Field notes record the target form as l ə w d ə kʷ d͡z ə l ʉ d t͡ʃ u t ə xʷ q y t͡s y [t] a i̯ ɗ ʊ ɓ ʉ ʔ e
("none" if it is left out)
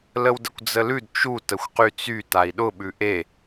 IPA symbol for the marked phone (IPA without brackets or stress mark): t